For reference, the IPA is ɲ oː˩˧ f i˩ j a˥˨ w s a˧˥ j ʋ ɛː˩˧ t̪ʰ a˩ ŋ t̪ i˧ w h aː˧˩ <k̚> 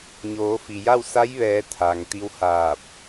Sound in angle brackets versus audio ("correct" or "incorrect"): incorrect